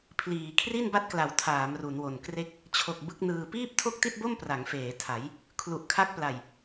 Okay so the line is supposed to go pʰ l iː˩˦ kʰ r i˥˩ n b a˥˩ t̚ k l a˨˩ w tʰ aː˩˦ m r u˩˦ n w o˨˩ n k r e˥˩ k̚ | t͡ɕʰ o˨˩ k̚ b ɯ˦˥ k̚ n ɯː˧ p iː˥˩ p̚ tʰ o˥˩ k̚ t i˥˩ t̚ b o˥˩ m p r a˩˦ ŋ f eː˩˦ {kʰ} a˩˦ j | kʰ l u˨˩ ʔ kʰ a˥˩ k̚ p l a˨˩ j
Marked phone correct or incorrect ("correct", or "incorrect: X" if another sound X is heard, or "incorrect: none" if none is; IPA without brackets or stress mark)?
incorrect: tʰ